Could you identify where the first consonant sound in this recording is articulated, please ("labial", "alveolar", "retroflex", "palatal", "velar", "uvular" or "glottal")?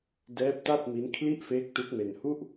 alveolar